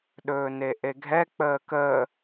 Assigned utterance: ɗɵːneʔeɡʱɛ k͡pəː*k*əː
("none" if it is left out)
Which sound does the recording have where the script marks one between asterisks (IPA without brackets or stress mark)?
k